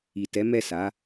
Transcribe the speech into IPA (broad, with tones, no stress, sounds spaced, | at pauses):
i˨ t ɛ˨˦ m ɛ˦˨ s a˨˦